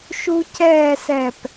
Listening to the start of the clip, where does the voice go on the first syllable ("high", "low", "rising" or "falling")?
high